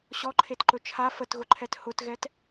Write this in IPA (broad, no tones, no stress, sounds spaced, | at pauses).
ɕ ɔ ǃʰ e t ǃ ɵ t͡ʃʰ a f ə t ɣ ʊ ǃʰ ɛ t h ʊ t ɣ ɛ t